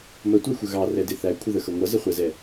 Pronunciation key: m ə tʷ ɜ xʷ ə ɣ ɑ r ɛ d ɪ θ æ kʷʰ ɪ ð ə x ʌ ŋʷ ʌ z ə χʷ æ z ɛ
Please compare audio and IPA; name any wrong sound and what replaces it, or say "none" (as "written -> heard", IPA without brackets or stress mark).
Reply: none